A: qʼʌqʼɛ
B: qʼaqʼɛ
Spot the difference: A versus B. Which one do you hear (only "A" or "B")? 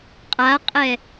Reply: B